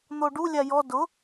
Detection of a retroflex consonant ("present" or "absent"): present